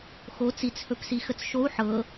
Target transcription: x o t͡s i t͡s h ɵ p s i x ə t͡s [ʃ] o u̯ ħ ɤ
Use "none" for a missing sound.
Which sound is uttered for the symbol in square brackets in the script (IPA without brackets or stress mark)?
ʃ